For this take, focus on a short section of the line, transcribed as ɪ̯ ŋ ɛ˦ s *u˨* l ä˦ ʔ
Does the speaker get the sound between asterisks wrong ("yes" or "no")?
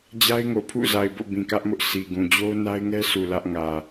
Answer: no